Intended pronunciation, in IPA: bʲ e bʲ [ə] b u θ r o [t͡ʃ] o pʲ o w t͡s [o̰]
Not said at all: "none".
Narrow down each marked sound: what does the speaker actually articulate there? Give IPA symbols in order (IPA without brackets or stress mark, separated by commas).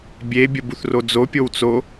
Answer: ə, d͡z, o